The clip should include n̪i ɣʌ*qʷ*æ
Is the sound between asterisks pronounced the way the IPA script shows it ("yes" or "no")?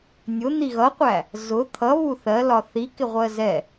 yes